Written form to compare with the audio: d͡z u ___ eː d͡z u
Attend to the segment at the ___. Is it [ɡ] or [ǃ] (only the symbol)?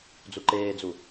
ǃ